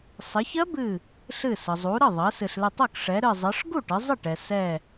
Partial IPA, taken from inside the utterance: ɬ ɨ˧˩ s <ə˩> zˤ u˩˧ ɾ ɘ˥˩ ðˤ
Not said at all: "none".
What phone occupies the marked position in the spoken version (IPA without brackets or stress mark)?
ə˩